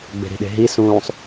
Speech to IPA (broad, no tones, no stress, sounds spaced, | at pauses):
ɡ͡b e̤ ɾ i̤ ɗ e̤ ɦ i s ũː sˤ